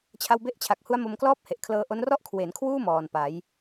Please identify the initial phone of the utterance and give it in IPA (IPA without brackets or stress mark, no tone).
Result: t͡ɕʰ